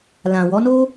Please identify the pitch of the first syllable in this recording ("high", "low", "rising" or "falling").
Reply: low